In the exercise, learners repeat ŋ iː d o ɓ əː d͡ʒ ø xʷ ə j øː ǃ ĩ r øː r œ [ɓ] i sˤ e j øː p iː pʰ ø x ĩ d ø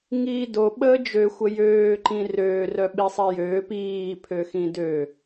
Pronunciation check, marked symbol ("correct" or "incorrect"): correct